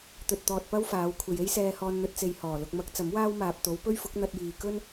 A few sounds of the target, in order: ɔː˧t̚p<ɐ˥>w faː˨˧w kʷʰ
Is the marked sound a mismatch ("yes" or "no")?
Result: no